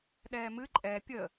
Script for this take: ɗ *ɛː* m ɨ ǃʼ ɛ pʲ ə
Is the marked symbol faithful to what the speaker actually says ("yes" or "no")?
yes